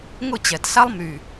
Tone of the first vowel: falling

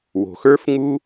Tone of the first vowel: low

